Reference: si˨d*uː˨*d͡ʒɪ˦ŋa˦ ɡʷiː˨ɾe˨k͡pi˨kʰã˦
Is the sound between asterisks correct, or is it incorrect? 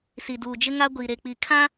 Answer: correct